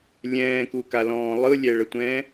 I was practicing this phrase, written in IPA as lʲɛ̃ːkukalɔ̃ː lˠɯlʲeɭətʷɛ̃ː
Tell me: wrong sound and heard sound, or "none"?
e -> ɛ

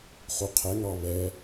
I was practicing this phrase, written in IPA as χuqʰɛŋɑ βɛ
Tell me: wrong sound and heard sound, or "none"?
none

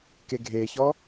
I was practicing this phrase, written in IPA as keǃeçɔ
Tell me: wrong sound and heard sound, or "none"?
ǃ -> ɡʱ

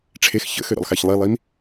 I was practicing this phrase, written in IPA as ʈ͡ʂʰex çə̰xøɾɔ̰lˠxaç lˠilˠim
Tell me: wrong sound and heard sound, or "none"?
none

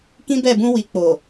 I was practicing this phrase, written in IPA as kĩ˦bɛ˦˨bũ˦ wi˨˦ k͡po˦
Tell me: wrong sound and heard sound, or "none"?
o˦ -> o˨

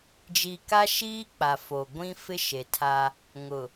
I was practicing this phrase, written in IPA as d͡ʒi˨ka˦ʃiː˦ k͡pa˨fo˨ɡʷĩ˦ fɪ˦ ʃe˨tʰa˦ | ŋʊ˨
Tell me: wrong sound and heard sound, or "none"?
none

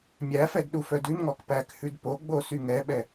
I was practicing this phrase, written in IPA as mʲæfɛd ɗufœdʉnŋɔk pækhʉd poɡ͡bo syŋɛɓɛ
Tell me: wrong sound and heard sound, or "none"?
none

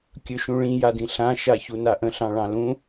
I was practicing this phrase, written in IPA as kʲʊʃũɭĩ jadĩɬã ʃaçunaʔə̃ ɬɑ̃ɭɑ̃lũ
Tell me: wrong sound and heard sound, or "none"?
ʊ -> ɵ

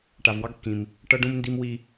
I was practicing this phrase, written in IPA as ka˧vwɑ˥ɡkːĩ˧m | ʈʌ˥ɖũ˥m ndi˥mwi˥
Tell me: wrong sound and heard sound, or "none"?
k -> ʈ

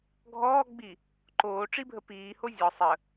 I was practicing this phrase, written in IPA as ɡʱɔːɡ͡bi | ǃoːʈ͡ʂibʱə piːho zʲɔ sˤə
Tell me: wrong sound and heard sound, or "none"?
none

